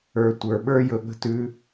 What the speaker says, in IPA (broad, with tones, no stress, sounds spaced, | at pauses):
ə˞˦ tʷ ə˞˧ ɓ ə˞˦ j ɵ˧ ɠ ə̤˦ t ʉ˦